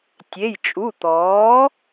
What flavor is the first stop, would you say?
plain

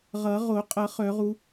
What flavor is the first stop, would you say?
ejective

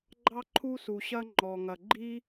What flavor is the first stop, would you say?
click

